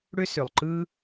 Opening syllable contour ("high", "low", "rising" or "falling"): high